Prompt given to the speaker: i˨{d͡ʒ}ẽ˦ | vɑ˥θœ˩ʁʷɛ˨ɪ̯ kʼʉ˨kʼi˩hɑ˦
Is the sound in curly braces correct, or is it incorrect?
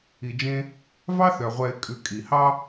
correct